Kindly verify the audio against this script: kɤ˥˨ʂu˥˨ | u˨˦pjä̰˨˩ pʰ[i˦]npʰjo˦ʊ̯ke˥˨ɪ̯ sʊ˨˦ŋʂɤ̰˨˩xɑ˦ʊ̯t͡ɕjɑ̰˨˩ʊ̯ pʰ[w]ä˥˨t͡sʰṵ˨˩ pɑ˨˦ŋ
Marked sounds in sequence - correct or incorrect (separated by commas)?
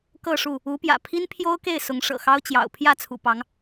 correct, incorrect